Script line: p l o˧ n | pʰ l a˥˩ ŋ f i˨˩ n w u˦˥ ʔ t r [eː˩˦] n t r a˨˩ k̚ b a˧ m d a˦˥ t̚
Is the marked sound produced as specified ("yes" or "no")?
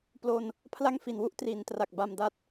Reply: no